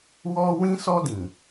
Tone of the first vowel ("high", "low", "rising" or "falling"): high